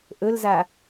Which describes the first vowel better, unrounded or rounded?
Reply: rounded